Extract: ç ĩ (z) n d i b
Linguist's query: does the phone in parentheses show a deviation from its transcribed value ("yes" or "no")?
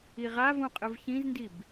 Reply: no